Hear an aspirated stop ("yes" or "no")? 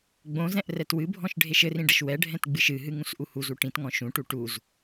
no